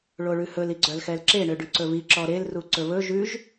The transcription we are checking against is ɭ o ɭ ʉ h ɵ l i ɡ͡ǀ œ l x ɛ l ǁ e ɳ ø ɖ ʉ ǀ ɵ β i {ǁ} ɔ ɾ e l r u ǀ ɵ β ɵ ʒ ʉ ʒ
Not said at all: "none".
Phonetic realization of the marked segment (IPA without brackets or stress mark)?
ǁ